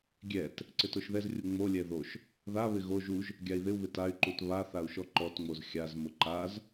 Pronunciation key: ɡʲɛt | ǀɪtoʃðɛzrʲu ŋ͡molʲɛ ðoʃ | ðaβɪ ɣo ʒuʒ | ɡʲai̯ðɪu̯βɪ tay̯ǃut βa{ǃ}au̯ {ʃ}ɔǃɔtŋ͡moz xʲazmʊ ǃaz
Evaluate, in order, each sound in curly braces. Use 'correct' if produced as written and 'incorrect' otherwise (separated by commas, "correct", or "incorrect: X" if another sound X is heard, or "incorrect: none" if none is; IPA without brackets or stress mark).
incorrect: θ, correct